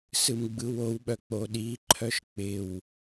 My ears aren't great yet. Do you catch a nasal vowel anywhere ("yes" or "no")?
no